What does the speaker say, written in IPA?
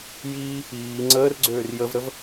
j iː | iː ŋ͡ǀ əː r ɡ͡ǀ øː r j ə v ɾ ə v

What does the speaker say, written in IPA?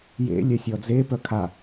j ḛ lʲ ɛ sʲ ɔ d͡z e p œ kʰ a

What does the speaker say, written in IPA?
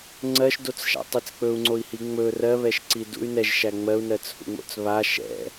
ŋ͡ǀ ɜ ʃ d o t͡s ʃ a̰ tˤ i t͡s k͡p ɵ u̯ ŋ͡ǀ o i̯ h i ŋ͡m ɵ r ɜ β ɛ ʃ ǀ i d ṵ y̯ n ɛ ʒ ʃ æ ŋ͡m ɜ u̯ n ɜ t͡s h ṵ ŋ͡m o̰ t͡s β a ʃ ɛ̰

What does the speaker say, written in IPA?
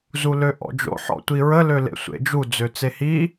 z u l ø ʔ ɔ̰ d͡ʒ o̰ ħ ɔ̰ tʷ i ɹ ə l ø l ḛ sʷ ḛ d͡ʒ u d͡z ø t͡s e h i

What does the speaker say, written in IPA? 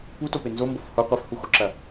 p u t o p e n z o m b o f h o qʷ e f h u x o ǁ ɐ

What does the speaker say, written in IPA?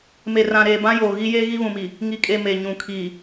m e˨ r ã˨ ɾ eː˨ b ã˦ j oː˨ ɣ i˦ j e˦ ɣ i˦ β ũ˨ m iː˨ | ŋ i˨ kʼ e˨ m e˨ ɲ ũ˨ kʰ iː˨

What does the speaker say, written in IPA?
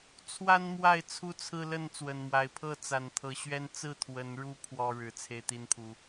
t͡sʰ w a˦ n m w a˥˨ ɪ̯ t͡sʰ u˦ t͡sʰ ɹ̩˦ l ə˥˨ n t͡s w ə˨˩ n m w a˨˦ ɪ̯ pʰ ɤ˥˨ t͡s a˨˩ n t̪ʰ ɤ˨˦ ɕ ɥ ɛ˦ n t͡s ɹ̩˥˨ t̪ʰ w ə˨˦ n ɻ u˦ pʰ w ɔ˦ ɻ ɻ̩˨˩ t͡sʰ e˦ ɪ̯ t̪ i˦ n pʰ u˨˦

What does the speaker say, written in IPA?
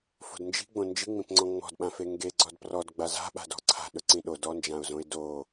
f o̤ d n d͡ʒ i̤ ɡ͡b õ n d͡ʒ i ŋ͡m ĩ p ŋ͡ǀ ɔ̃ ŋ͡m ɔ̤ d ɓ ã f e ŋ ɡ e ɡ͡ǀ ɔ d p r ɔ d ɡ͡b a z a̤ ɓ a̤ d ɔ̤ ǀʰ a̤ ɗ ɵ ǀ ĩ ɗ o d ɔ n d͡ʒ ã ʊ̯ z õ ɪ̯ d o

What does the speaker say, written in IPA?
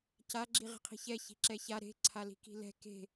c a ɡ͡ǁ i ʁ i̤ qʰ i̤ ç ɛ ç i̤ ǁ ɛ ç a ɾ e̤ ǀʰ a l i̤ k i̤ l ɛ̤ k e̤

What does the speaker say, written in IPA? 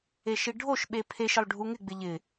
e ʃ i ɖʱ o ʃ ɓ e pʰ e ʃ ɪ lˠ ɖʱ u ŋ ɪ ɡ͡b ɪ ʎ ɪ

